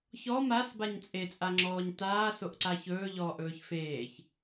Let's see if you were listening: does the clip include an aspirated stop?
no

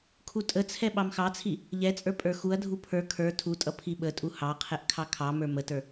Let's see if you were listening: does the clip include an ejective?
yes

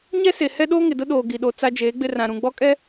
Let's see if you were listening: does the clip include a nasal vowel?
yes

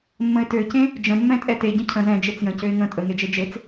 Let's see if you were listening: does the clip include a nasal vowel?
yes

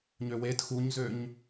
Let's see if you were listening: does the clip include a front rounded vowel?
yes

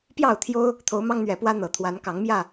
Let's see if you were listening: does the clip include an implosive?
no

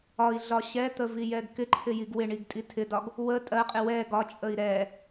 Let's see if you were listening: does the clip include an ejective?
yes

